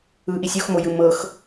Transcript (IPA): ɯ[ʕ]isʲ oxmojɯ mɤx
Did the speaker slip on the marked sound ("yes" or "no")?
yes